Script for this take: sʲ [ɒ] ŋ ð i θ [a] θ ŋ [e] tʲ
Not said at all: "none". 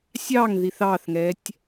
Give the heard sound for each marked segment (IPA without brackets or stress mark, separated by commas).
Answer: ɑ, ɑ, ɛ